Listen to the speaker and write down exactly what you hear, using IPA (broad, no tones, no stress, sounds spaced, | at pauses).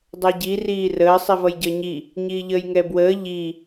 dˤ ɛ ɟ i r iː r əː sˤ i v ʌ j ɟ əː ɲ i | ɲ iː ʎ əː j ŋ ɛ b w əː ʎ i